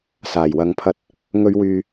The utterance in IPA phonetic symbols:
s aː˨˩ j w ɐ˨˧ ŋ pʰ ɐ˧ t̚ | ŋ ɵ˨˧ ɥ w yː˨

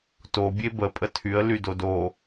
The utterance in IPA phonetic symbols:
t o bʲ e b ə pʼ ə tʰ y ə̯ l y d o d o

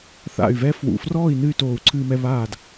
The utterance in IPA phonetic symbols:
θ a̰˧˩ y̯ v ɛ˦ f w ṵ˧˩ f r ɔː˥˨ i̯ n ɨ˥˨ y̯ t oː˧˩ u̯ ǀʰ ɨː˦ m ɛ˦ β aː˥˨ d

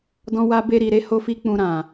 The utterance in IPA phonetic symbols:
d ɔ̃˧ w a˧ b e˧ ɾ i˨ ɾ e˨˦ h o˦ f i˦ k͡p ũ˧ ɾ ã˨

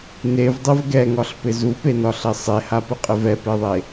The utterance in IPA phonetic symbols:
n e v dˤ e v ɡ ɛ ŋ ɒ ɬ p ɪ z u p e n ɒ ɬ ɛ sˤ e h a p ɪ qʼ ɪ v ɛ p e ðˤ e

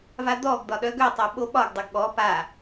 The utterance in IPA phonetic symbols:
v a d̪ ɔ ɡ d̪ ɒ ɗ œ ɡ œ tˤ œ ɓ o ɓ ɒ ɡ dˤ o ɡ ɠ ɔ p a

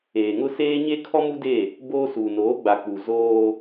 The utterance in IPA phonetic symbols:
eː˨ ŋ ʊ˦ s eː˦ ɲ e˦ kʰ ɔ˦ m u˦ d e˦˨ | b oː˦ s uː˨ n oː˨˦ ɡ͡b a˨ k͡p u˨ z oː˦

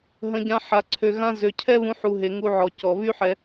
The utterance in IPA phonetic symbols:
ɦ ə̃˧ ɟ ã˧ ħ a˧ ǀʰ ø˨ ɣ ã˧ z ø˨ cʰ ɛ˦ β ũ˧ ħ u˨ ɦ e˨ ŋ u˧ ʕ ɔ˨ c ɔ˨ β y˦ ħ ɛ˧

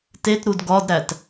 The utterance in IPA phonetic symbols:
t e t ɾ u d ɡ ɒ d ɾ æ t

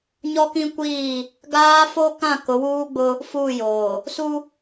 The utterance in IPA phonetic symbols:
ɲ ɔ˦ k ĩ˦ kʷ iː˦˨ | ɡ aː˦ f o˦ k ã˦˨ k ʊ˨˦ w uː˦ ɡ͡b ʊ˦ | f uː˦˨ j oː˨ | s u˦

